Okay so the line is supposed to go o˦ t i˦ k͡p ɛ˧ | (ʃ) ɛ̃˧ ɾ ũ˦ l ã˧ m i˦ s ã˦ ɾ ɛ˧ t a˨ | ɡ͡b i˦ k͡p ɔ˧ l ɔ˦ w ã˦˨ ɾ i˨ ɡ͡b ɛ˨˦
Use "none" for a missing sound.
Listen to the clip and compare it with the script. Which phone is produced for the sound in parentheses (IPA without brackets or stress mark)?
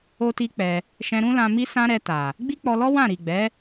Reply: ʃ